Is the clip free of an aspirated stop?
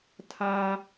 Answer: no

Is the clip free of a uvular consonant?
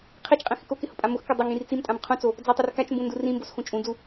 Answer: no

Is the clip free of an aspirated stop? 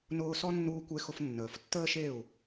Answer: yes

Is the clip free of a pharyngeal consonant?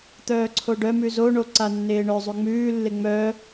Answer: yes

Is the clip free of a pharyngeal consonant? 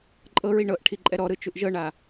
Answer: yes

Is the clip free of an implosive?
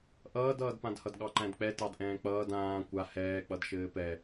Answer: no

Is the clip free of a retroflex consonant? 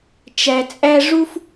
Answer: no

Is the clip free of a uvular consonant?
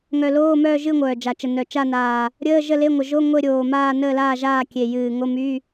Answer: yes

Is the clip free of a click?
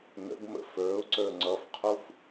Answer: no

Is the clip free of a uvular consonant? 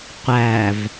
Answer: no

